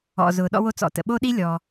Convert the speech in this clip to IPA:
ɔ̰˩zʊ˩ ɗɔ̰˧wo˧t͡sɔ̰˩tə̰˩ ɓo˥ɗi˥ lʲɔ˩

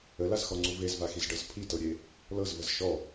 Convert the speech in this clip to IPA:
əlazxɔŋ͡ǀu vezvaxizɖɤz pʰitɤɾʲe | lɤzvəz ʃɔ

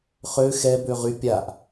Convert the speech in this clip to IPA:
χø xɛ bøʁy pʲaʔ

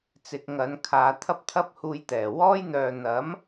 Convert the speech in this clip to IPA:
t͡sɪ˨k̚ ŋɐ˨˧n kʰaː˨˧ t̪ʰɐ˥p̚t̪ʰɐ˥p̚huː˧jt̪ɛː˨˩ wɔː˥jn̪œː˨ n̪ɐ˨˥m

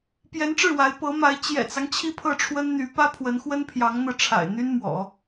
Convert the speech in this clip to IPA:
pjɛ˧˥nʈ͡ʂɻ̩˥˩wa˧˥ɪ̯ pɤ˧˥ma˧˥ɪ̯ t͡ɕjɛ̰˨˩t͡sɑ˦ŋ t͡ɕʰi˥˧pʰɤ˥˩ʈ͡ʂʰwə˥nn̪y˧˥ pä˥ pʰwə˧˥nxwə˥npʰjɑ˧˥ŋ n̪ɤ˥˩ʈ͡ʂʰa̰˨˩ɪ̯ n̪y˥nmwɔ̰˨˩˦

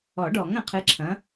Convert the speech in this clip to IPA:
ɔ˨˩˦ɖɔ˨˩˦ŋɐ̃˨qʰɨ˨˥ ǁʰɐ̃˨˥

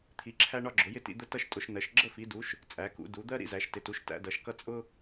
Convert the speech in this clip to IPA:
t̪ʰi˩˧ǁʰæ˧ ɳɒ˧ɡ͡ǁʊ˩˧jɪ˧tḭ˩˧ d̪ə˧ tʌ˧ʃ tʼʊ˩˧ʃnɜ˩˧ʃ ɡ͡ǁə˧fi˩˧du˩˧ʃ | t͡sʼæ˩˧kṵ˩˧ du˩˧d̪ɜ˧ ɾḭ˩˧zæ˩˧ʃtɪ˩˧tu˩˧ʃ tæ̰˩˧dʌ˩˧ʃkʌ˧ t͡sʼʊ˧

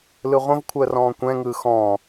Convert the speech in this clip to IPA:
lɯʁʷə̃vkʷʰəː rɔ̃ːkʷɛ̃ŋɯː xɔ̃

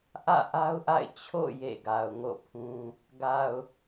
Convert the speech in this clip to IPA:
ʔä̰˦˨ʔa˦ʊ̯ʔa̰˦˨ɪ̯ t͡ɕʰo̰˦˨ jḛ˦˨ɡa˨ʊ̯ ŋo̰˦˨pʰũ˦ | ɡa˨ʊ̯

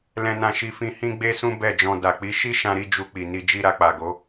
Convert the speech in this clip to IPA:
lɛ̃˧nã˧ʃi˧fĩ˧ hĩ˦ɡ͡be˦sũ˦ bɛ˦˨d͡ʒɔ̃˧ da˨k͡pi˨˦ ʃi˦ʃã˧ɾi˧ d͡ʒu˧k͡pi˨ni˧ d͡ʒi˧ɾa˧k͡pa˨ɡo˨˦

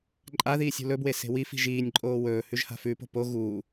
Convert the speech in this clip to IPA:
ǃʼaðiːsʲ ṳlɵbwe se̤wifi̤ ʒiːnʲǃʼoː wɵːhʉʒ ha̤fʉpo̤ po ɣuː

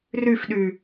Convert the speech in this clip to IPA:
ryfɗy

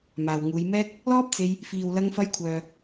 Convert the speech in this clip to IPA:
maː˨w ŋuː˨˧jmɛː˥k̚ | lɔː˥p̚t͡se˧j | fiː˨wlɐ˧ŋfɐ˧j kʷʰœː˨

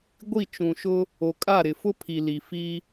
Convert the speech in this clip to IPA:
ɡʷi˦˨t͡ʃũ˨ʃʊ˦ | o˨kʼa˦˨ɾɪ˨ fʊ˦pʰi˨li˨ fi˦

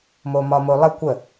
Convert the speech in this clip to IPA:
momɒmolˠə kʷə

